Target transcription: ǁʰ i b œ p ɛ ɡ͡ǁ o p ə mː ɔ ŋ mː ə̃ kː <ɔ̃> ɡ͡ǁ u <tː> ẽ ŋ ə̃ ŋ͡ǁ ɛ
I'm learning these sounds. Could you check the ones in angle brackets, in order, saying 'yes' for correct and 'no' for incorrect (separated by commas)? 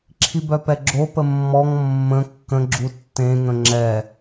no, yes